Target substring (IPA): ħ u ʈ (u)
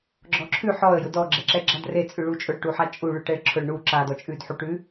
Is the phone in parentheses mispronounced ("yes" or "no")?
yes